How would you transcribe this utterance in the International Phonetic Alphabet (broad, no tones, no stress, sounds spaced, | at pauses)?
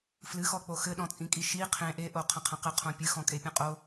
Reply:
f l ɨ x ɔ k͡p o x ɘ ɗ ɔ̃ t͡sʼ ĩ kʼ i ʃ i qʰ ẽ ʔ e ʔ o qʰ ɐ̃ qʰ ɐ̃ q ɘ qʰ õ pʲ ɨ x ɔ̃ kʼ e pʲ ɔ̃ qʼ o